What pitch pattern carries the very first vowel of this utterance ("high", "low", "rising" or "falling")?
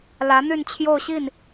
rising